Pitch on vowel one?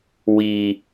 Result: low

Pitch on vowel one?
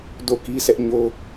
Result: falling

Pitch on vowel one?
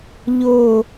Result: falling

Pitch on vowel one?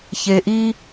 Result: low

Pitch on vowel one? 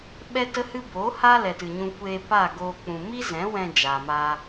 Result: high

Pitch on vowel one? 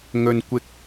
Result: low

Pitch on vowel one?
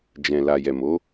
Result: low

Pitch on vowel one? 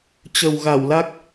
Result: low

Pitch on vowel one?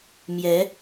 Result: rising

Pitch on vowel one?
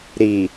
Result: low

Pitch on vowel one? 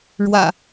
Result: low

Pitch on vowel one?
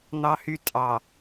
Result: high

